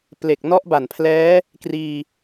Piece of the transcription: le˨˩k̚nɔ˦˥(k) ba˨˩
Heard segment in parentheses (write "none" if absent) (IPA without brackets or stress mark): ʔ